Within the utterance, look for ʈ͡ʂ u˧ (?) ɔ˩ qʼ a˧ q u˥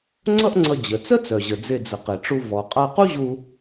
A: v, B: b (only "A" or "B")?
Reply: A